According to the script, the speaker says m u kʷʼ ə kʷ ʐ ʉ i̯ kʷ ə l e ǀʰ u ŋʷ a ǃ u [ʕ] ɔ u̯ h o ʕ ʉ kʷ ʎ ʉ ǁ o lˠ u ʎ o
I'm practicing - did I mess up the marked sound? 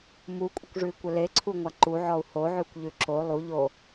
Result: no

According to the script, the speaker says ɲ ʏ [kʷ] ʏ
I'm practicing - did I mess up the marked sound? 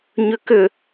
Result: yes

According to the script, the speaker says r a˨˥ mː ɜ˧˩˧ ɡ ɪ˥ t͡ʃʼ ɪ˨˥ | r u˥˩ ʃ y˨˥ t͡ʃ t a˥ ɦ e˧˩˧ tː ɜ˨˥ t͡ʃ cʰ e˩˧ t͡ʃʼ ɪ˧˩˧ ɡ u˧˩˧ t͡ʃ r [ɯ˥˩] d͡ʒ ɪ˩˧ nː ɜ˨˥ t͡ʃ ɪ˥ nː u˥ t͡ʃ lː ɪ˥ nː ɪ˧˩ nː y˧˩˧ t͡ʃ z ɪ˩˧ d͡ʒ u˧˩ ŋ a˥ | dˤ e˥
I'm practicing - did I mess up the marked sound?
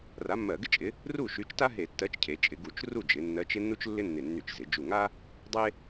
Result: yes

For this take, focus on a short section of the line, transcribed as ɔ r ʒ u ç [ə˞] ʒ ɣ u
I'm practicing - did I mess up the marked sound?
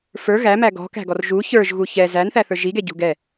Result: no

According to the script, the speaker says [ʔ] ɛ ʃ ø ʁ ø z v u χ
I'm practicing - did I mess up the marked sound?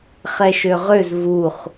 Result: yes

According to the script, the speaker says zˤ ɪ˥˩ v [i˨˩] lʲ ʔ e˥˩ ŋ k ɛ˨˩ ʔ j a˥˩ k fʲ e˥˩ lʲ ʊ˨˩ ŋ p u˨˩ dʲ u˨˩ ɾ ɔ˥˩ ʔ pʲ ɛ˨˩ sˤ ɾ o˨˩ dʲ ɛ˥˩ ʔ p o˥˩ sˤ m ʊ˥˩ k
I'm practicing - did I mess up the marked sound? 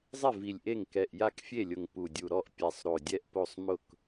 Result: no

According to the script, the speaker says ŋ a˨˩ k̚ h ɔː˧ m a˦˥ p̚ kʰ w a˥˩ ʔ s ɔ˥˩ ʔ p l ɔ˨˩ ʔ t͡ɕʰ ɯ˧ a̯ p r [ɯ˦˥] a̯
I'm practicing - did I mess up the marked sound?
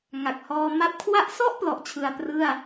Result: yes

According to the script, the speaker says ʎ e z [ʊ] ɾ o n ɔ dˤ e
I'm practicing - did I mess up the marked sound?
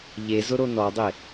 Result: no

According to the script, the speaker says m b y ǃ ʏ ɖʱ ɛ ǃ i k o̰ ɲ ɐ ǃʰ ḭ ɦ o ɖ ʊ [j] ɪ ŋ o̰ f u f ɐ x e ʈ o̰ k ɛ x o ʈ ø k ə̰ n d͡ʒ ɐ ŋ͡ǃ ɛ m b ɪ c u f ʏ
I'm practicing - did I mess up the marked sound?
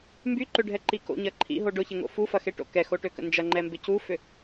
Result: yes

